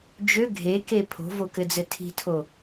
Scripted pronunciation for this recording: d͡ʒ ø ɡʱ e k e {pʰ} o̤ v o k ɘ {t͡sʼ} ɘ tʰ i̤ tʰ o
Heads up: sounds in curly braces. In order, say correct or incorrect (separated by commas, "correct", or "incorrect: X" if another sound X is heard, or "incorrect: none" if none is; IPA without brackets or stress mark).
correct, incorrect: d͡z